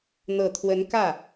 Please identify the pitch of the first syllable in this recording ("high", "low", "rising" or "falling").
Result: low